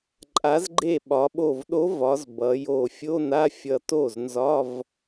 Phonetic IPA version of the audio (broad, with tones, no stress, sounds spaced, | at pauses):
ǃʼ a˩˧ z ɡ͡ǃ e˧˩ ɓ ɒ˩˧ ɓ o˧˩ v ɗ o˧˥ v ɒ˩˧ z b ʌ˩˧ j o˧˩ fʲ o˧˥˧ n a˧˥˧ fʲ ʌ˧˩ t o˥˩ z n z ɒ˧˥˧ v